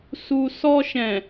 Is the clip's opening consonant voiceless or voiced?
voiceless